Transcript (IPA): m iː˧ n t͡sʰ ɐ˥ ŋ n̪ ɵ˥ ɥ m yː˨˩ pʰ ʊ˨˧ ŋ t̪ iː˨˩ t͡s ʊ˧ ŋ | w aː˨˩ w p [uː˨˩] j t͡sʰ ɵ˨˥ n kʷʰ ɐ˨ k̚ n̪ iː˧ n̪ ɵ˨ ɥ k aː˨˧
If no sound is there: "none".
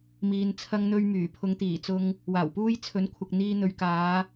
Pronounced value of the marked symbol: uː˧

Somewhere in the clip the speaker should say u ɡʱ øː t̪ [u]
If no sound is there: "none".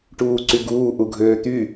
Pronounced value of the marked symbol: y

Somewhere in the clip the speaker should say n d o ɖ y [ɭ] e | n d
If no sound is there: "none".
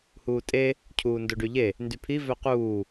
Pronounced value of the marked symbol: ʎ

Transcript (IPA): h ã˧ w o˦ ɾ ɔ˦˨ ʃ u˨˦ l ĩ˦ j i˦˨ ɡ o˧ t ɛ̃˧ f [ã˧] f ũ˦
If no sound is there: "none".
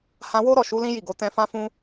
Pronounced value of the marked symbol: ã˦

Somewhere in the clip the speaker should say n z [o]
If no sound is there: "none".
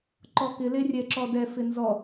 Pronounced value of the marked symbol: ɔ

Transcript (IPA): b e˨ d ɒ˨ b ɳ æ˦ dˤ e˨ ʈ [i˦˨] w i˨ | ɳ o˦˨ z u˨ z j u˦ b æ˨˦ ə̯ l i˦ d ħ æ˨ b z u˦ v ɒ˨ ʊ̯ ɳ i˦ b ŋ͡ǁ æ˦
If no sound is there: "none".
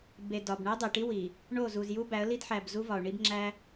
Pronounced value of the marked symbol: i˦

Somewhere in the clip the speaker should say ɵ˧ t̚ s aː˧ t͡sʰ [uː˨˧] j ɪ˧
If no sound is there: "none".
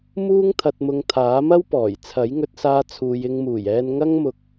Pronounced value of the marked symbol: uː˨˧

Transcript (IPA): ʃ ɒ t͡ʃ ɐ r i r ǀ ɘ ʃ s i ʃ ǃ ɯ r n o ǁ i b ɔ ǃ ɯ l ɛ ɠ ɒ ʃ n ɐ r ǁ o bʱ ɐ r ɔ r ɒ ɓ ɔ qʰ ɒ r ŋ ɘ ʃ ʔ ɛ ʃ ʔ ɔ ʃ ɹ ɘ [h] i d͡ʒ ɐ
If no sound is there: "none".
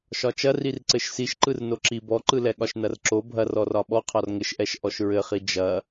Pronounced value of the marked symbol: χ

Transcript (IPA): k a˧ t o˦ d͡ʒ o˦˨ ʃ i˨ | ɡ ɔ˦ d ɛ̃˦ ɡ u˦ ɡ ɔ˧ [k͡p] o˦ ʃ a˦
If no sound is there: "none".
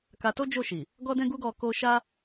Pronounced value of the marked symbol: k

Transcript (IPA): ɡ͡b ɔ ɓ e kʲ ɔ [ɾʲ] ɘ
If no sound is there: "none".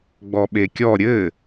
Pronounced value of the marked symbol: ɾʲ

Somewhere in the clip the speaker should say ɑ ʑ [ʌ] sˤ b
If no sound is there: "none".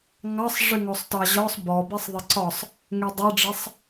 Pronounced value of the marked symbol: ɒ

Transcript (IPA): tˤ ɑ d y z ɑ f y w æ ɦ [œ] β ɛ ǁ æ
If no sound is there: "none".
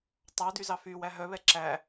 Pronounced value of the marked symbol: œ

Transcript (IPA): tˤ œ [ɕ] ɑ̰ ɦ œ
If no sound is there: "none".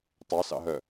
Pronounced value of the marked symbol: s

